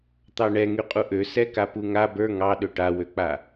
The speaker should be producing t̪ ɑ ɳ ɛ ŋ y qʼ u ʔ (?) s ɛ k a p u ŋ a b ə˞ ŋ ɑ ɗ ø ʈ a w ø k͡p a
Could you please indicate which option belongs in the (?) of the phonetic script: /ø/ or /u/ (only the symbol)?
ø